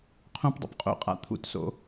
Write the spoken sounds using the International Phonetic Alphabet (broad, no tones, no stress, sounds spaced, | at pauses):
qʰ õ p dˤ ṵ p qʼ o̰ qʼ a̰ t̪ʰ ṵ t s o̰